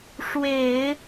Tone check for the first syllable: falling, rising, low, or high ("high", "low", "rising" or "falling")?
low